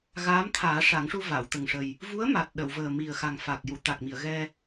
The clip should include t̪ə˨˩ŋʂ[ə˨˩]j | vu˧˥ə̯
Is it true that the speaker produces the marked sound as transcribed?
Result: yes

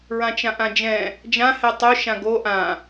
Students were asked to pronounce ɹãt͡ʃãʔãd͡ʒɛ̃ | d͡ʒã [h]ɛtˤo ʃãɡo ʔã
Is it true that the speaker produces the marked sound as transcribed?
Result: yes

